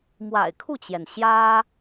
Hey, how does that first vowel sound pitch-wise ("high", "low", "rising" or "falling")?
low